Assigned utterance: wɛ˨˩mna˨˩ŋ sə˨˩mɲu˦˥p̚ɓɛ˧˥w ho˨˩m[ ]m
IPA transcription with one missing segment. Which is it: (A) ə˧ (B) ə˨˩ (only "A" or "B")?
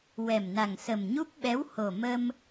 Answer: A